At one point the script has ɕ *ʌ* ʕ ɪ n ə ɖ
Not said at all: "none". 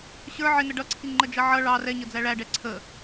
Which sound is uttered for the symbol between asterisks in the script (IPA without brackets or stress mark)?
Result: ə˞